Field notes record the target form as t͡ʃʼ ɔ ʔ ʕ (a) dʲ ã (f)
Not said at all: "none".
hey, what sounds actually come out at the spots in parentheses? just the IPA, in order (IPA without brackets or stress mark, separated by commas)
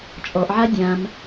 a, m